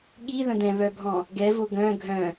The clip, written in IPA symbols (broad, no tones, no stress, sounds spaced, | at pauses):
ɠ i ð ə̃ d̪ ɛ̃ β œ bʱ ɔ̃ | ɡ ɛ v o ɡ œ̃ ɡʱ œ̃